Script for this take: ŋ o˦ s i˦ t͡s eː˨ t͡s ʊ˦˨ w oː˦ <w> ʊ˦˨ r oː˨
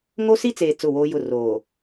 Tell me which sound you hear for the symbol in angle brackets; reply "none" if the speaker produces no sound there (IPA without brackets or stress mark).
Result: j